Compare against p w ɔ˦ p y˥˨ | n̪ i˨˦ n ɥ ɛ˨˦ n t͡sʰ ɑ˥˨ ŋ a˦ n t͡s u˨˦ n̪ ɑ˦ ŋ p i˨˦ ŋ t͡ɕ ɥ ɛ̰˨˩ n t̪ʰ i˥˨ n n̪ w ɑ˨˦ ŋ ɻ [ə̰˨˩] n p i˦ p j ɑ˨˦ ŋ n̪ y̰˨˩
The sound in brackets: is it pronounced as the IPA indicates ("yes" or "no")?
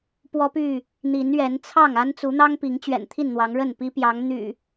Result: no